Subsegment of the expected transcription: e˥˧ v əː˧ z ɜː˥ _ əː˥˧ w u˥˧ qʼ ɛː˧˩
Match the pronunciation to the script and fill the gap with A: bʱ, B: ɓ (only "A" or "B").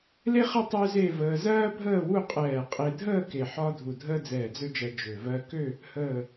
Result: A